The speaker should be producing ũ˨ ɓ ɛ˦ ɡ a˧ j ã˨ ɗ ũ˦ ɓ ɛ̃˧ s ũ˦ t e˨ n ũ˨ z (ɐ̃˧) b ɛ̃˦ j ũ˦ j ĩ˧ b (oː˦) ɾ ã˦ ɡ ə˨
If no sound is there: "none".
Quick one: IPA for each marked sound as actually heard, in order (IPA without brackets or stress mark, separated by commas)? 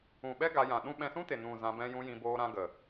ã˧, oː˦